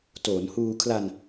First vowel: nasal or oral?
oral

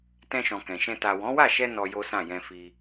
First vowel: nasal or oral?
nasal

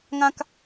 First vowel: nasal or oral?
nasal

